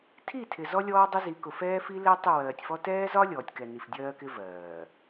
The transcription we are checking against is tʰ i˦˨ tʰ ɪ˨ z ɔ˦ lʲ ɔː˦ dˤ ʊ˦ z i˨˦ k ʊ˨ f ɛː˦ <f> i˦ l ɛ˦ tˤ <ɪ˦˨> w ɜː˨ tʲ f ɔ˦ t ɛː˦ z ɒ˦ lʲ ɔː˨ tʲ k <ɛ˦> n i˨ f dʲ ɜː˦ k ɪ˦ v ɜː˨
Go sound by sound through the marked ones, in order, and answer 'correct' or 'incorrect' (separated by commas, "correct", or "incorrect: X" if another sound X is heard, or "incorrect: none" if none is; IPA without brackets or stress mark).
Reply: correct, correct, incorrect: ɛ˨